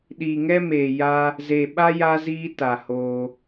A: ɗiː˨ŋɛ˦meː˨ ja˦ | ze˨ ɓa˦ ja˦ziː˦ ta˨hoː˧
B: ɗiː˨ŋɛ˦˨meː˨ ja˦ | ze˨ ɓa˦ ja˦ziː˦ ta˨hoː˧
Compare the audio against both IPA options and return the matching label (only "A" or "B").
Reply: A